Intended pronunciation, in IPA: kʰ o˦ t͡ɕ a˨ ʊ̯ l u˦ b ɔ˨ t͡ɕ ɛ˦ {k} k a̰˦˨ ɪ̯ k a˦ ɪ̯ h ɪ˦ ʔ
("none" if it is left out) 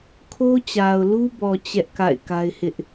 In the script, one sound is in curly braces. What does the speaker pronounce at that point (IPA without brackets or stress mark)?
ʔ